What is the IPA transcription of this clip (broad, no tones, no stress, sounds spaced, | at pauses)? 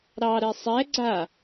ɾ ɑ ɾ ɛ sˤ ɛ ɡ͡ǀ a